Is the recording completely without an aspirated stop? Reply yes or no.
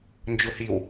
yes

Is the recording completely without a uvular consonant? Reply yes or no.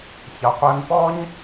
no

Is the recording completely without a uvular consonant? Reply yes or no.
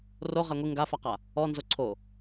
no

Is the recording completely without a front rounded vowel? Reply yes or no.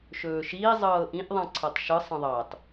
yes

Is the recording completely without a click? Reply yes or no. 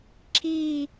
no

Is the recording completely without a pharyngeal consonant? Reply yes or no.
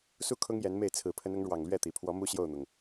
yes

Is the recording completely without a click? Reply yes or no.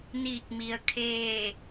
yes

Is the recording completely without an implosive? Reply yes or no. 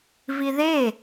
yes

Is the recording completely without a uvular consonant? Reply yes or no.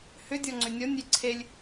yes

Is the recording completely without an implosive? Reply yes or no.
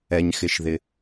yes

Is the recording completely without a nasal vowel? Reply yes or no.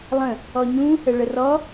no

